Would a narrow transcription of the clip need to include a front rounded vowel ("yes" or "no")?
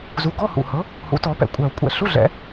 no